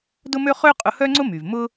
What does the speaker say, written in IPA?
dʊ˥mø˥ χø˥qʼʊ˧hœ˥ŋ͡ǀʊ˥ my˩vmʊ˥

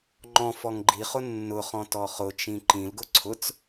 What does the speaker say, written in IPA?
ŋ͡ǃɔ̃ fɔŋɡ͡ǃiχʊ nːʊχɔ̃ tɔχʊt͡ʃĩ ǃĩlɡʊ ǀʰʊt͡s

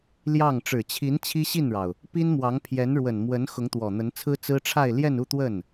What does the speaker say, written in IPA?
ljɑ˥˩ŋ ʈ͡ʂɻ̩˨˩t͡ɕʰi˧˥n t͡ɕʰi˥ɕi˥˩nɻɑ˩ʊ̯ | pi˥nmwɑ˧˥ŋ pʰjɛ˧˥nɻwə˨˩n mwə˧˥n xʊ˧˥ŋt̪wɔ˨˩n̪ə˧˥nt͡sʰɹ̩˥ t͡sɹ̩˥ʈ͡ʂʰa˥˧ɪ̯ ljɛ˥˧nu˥˧ t̪wə˥˩n

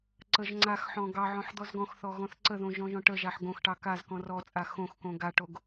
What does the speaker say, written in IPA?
ǀəʒ ŋ͡ǀaxħɔ̃ ɡɑʕɔ̃ħ d̪ɔzɡɔ̃xθɔ ɣɔ̃θǀəðõ ʒɔ̃ʒɔ̃ʈəʒaħ ɡõxʈɑ kazkɔ̃ rɔt͡sʼa xõxkõ ɡaʈoɡ

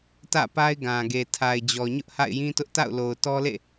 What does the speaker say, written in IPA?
tä̰˦˨pa˦ɪ̯ɡã˨ɡe˨ tʰa˨ɪ̯d͡ʑɔ˨ɲʊ˦ʔ ha̰˦˨ɪ̯jĩ˦tʊ˦ʔ ta̰˦˨ʊ̯lo˨ʊ̯ tɔ˦lḛ˦˨

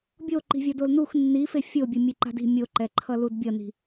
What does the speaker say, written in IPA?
bʲoǃi̤vʲʌ dolnux nːife fʲobʲɯ mʲeǃa̤di̤ mʲoǃɛǃʰʌ ludbʲʌni̤

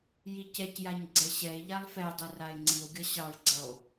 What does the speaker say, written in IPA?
jicɛcjaɲ ɡ͡ǀɛɕɛe̯ʎalˠ fɛdˤɯ rae̯ŋ͡ǀio̯ɡʲʌ ɕɑɭɡ͡ǀʌo̯

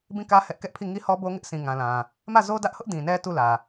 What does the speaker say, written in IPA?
bĩ˦˨kä˦ hɛ˦ʔ kɛ˦ʔpʰi˦˨ ŋi˦hɔ˦bo˦ ŋɪ˦ʔsĩ˨ŋã˨lã˨ | mä˦˨zo˦dä˦ʔhʊ˦ʔ dĩ˨nɛ˦ tu˦˨lä˨

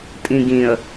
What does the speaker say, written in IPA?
tʼĩɡĩə̯

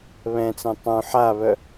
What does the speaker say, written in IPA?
βɛ̃t͡sɛ̃ tˤũ ħaβœ

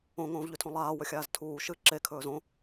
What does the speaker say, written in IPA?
õŋõːvʎʉtʰõ lˠaːwɵxʲaːz tʰuː ʃɨ ǁekʰɵːz õ

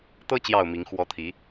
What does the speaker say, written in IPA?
t̪ɤ˦ t͡ɕjɑ˥˨ʊ̯mi˨˦ŋ xwɔ˨˦ t̪ʰi˨˦

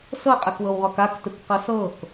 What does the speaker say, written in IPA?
sɤqʼɛkwɤwʁɔk aktɯkqɤ sɤk

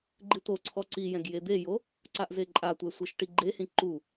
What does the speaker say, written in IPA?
ɡ͡ǃɨt̪oǀʰɔ ǀijɛ̃ɡ jed̪ejo | ǀaʔzeǃʼatʷɛ sʷeʃʈiɡ͡ǃehĩ ǃu

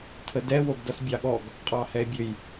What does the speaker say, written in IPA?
tʰədɛ woɡdʌsbʲɑɠɔɡ | qʼɑhɛe̯bʲøj

